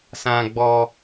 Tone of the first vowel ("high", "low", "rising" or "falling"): high